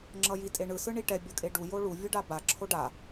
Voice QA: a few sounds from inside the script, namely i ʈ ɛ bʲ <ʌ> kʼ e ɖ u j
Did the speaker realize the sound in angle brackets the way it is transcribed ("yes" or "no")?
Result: yes